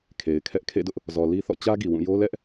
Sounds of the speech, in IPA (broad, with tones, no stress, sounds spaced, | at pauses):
kʰ e˨ ɪ̯ kʰ ɛ˦ ʔ kʰ ḛ˦˨ d ʊ˦ ʔ | z ɔ˨ l i˦ θ ɔ̰˦˨ t͡ɕ ä˦ ɡ i˨ w ũ˦˨ j o˦ l ɛ˦ ʔ